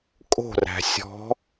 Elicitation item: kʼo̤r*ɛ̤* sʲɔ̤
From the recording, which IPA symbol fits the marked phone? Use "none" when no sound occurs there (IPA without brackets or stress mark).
æ̤